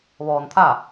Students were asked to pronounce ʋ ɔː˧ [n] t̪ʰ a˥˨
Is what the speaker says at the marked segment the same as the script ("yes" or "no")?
yes